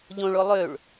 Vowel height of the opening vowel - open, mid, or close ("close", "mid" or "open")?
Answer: mid